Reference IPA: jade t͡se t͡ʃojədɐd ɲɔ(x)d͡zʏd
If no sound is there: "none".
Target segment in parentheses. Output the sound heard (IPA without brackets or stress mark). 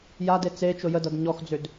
x